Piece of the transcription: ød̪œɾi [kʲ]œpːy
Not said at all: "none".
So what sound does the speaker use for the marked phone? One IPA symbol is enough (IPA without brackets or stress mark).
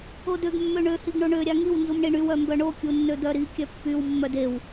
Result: kʲ